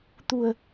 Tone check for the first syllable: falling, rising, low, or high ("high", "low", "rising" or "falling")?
low